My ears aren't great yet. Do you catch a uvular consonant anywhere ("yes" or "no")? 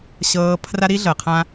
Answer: yes